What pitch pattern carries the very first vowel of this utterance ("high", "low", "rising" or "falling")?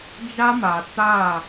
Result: high